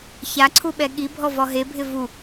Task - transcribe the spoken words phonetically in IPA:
çaǀʰuɓɛ ɠibʱɔvɔ ɦebʱɪ vu

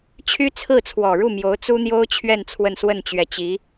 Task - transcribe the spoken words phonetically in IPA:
t͡ɕʰy˥t͡sʰɹ̩˥˩ t͡sʰwɔ˨˩ɻu˥˩mjo˧˥ʊ̯ t͡su˥n̪jo˥ʊ̯t͡ɕʰɥɛ˥˧n t͡sʰwə˥˧nswə˥˩nt͡ɕɥɛ˧˥ t͡ɕi˧˥

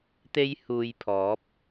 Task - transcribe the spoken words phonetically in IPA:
t̪e˥jhuː˧jpʰɔː˨˥p̚

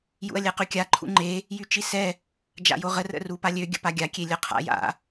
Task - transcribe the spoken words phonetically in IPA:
jṵɐ̯lʲɛqykʲa ǃʰṵŋ͡ǃe | jyt͡ʃisɛ | d͡ʒa̰joʁə rə̰rupalʲø ɡʲə̰paɡʲa kʲelʲœqʰa̰ ja̰

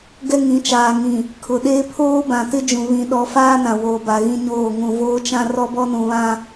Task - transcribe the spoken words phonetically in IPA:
ɡɛ˦ŋĩ˨˦t͡ʃaː˨ ŋĩ˨ | kʰʊ˨ɗeː˦ pʰoː˦bã˨tɪ˦d͡ʒũ˨ βĩ˦ɗɔ˦ faː˦nã˨ woː˨ba˨ɣĩ˦ɲoː˦˨ ŋũ˨voː˦t͡ʃã˦ rɔ˦bɔ˦nũ˨βã˦

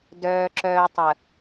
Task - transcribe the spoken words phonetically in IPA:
dœː˨ǁœː˨ tˤə˨

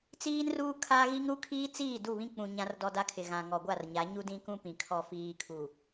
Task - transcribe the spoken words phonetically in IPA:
t͡siː˦nruː˦ kʰaː˦ɣi˦ŋ ɾu˦kʰiː˦t͡siː˦˨ du˦˨βĩ˦k͡pũ˨ ɲã˦rdɔ˦da˦kʰɪ˨ ɣã˨ŋɔ˨ɡʷa˦˨rɲa˨˦ ɲu˦dĩ˦kũ˦pĩ˨ kʰɔ˨fiː˨kʰu˨

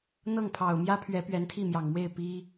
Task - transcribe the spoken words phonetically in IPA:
n̪ɤ˥˩ŋpʰɑ˨˩ʊ̯mjä˥pʰɥɛ˧˥ pɥɛ˧˥nt̪ʰi˥˩mjɑ˨˩ŋmwe˥˩ɪ̯ pi˥

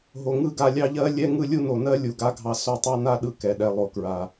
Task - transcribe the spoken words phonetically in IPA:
ɦo˨ŋɯ˦˨ɡa˧ lʲɑ˦ʎɜ˦ lʲɛ˦ ŋɯ˦lʲu˦no˨ nɜ˦ lʲu˨ɡa˧ɡʱɑ˧ so˦˨tˤɑ˦na˦ ɗɯ˦kɛ˨ ɗɛ˨ lˠo˨kɹa˨

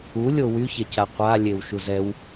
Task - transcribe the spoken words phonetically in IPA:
u lʲowy çɛcaqʷa lʲewʃuzɛw

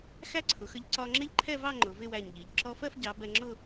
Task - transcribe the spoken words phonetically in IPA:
xæ˥ǀʰʊ˩˧xə˧ʎ ǀɒ˧ŋ͡ǁɪ˥ʎǃʰɛ˥˧vɑ˥˧ ŋ͡ǃʊ˩˧vɪ˥˧wæ˧˩ɲʎi˩˧ʎ ǁɔ˧fɜ˥˧fɟɑ˩˧ bɛ˧ŋ͡ǁʊ˥˧

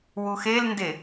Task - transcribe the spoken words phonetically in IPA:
wuxelnde

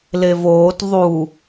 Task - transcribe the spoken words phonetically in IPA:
levoːt ðˤu

